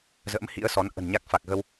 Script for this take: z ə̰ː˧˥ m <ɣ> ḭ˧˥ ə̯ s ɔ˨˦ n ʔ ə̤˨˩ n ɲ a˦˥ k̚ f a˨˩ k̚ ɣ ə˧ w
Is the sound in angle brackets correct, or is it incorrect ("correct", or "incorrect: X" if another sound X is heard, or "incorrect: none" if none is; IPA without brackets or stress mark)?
incorrect: h